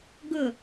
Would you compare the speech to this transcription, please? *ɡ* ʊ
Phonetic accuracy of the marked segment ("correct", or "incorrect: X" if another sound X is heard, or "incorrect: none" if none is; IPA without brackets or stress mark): correct